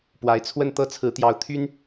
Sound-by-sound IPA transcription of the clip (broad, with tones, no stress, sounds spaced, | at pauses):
p w a˧˥ ɪ̯ t͡sʰ w ə˥˧ n t̪ ɤ˥˩ t͡sʰ ɹ̩˧˥ t̪ j ɑ˧˥ ʊ̯ t̪ʰ y˥ n